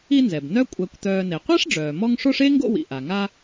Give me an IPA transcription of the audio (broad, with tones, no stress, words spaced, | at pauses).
i˦nzɛ˩b nœ˥ kʷʼæ˨kʷt̪œː˨ne˩ qʷæ˥ʂɖ͡ʐœː˩ mɔ˦ŋʂo˥ʂ e˥ŋɡo̰˦wḭ˩ ʔa˩ ŋa˦